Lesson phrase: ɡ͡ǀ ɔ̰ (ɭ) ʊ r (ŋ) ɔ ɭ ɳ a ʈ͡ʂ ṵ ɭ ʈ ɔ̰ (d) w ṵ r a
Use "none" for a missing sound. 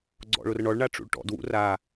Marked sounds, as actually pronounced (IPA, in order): ɭ, ɳ, d

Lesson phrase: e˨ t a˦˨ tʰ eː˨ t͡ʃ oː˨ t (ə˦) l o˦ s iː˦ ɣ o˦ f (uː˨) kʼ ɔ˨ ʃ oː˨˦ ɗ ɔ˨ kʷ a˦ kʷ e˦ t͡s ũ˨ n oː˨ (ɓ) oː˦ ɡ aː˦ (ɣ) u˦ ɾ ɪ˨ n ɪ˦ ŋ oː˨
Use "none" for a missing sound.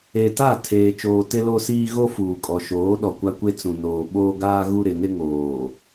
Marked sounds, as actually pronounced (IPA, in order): ɪ˦, uː˨, ɓ, ɣ

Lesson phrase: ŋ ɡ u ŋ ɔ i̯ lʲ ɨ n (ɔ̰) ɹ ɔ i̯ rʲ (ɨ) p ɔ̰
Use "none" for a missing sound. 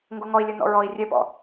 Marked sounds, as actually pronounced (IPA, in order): ɔ̰, e

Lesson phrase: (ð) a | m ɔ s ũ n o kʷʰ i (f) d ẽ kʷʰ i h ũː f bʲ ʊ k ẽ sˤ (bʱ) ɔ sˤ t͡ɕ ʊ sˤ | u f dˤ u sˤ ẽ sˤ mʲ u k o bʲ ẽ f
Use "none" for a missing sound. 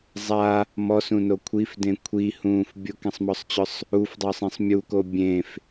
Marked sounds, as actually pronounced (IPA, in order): zˤ, f, m

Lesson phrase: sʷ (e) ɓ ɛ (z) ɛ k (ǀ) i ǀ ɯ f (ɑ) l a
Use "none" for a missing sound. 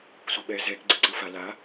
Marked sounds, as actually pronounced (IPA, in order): i, z, ɡ͡ǀ, a

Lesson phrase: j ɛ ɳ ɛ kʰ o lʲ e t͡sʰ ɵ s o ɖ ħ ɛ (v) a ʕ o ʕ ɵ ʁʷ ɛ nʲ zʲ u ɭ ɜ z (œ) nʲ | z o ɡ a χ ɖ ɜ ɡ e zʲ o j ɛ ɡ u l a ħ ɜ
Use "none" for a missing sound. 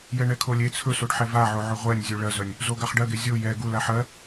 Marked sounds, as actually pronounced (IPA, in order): v, œ

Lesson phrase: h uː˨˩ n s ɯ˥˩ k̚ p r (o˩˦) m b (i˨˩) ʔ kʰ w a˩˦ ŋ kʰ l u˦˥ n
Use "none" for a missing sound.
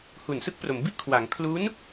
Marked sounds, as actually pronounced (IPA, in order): o˩˦, i˥˩

